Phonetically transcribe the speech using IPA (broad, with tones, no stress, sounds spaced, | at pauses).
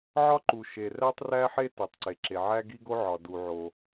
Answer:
ʕ ɒ˥ ǃ u˩ ʃ e˩ r æ˥ tˤ r æ˥ ħ e˥ t e˩ tˤ ǀ e˩ ǁ e˩ ʕ æ˥ ɡ i˥ ɡ o˥ ʕ ɒ˩ d u˩ ʕ o˩